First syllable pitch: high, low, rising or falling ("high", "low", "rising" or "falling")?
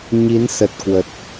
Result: rising